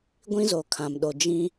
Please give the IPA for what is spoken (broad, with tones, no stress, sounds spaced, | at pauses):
ɡʷ ĩ˦ z o˨ kʰ ã˨ m ɗ o˨ d͡ʒ ĩ˦